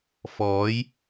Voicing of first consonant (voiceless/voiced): voiceless